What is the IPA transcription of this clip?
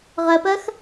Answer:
ʁ ɜ p ɜ x

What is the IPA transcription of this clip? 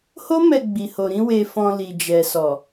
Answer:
h o˦ m ɛ˧ ɡ͡b i˨ h o˨ ɾ ĩ˧ w e˨ f ɔ̃˨ l i˨ d͡ʒ ɛ˨ s ɔ˨

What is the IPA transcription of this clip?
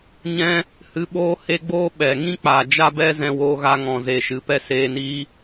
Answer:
ɲ ɛ̃˦ | h ɨ˧ ɓ oː˦ h e˦ ɡ͡b oː˦ ɓ ɛ˨ ŋ ĩ˦ k͡p a˨ d͡ʒ a˦ b ɛ˦ z ɛ̃˧ w oː˧ ɣ a˧ ŋ ɔ̃˨ z e˨ ʃ ɨ˨ p ɛ˦ s eː˧ n iː˦

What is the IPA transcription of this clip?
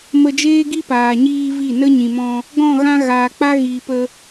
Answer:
m ə˧ d͡ʒ eː˦ ɡ i˦ p aː˨ ɲ iː˧ v i˦˨ n ə˦ ɲ ĩ˨ m ɔ̃˧ | ɡ ɔ̃˦˨ ɣ ã˦ ɣ aː˨ k͡p a˦ ɣ iː˨ p ə˧

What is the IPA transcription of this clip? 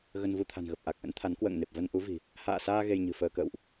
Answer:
ɣ ə˧ n v u˧ t̪ʰ a̤˨˩ n ɣ ə˨˩ p̚ ʔ a˨˩ k̚ ʔ ə̰˧˥ n t̪ʰ a˨˦ n k w ə̰ː˧˨ ŋ n e˨˩ p̚ v ə˧ n ʔ u˨˦ v i̤˨˩ | h a̰ː˧˨ s aː˧ ɣ e˧ j ɲ ɨ̤˨˩ f əː˧ k ə̰ː˧˨ w ʔ

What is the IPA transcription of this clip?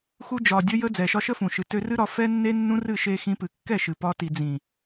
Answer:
x u˧ d͡ʒ ɒ˨ dʲ ə˦ j ə˦ d͡z ɛ˨ ʃ ɒ˧ ʃ ə˦ f ũ˨ ʃ ɨ˨ t ø˧ r ɨ˦ ɾ ɒ˧ f ɛ˦ nː e˦ nː ũ˦ r ɨ˦˨ ʃ e˦ x ĩ˦ p ɨ˧ kː ɛ˦˨ ʃ ɨ˨ p ɒ˧ t i˨ d͡z ĩ˨

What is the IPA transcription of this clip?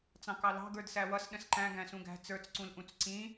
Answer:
t͡s ɑ̃ k ɑ l ɑ̤ ɡ ə˞ d s æ w ʌ s ɗ ə̃ s ǃ æ̃ ɡ æ̃ s ũ ɡ æ̤ t͡s ə˞ t͡s ǀ ũ l ʔ ũ t͡s ǀ ĩ

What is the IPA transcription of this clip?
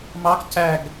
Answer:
m ɑ k c æ ɡ

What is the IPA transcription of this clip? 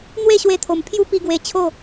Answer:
n̪ w e˥˧ ɕ w e˧ t̪ʰ o˨˩ m pʰ j u˦ p i˧ ɡ w e˧ t͡ɕʰ o˥˧

